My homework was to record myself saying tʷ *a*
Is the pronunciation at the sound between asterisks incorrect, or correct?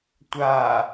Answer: correct